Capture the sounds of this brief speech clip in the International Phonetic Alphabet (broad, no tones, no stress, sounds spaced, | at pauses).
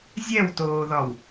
zʲ ɛ w t oː ð ɒ w